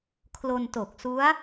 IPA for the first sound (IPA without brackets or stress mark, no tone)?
kʰ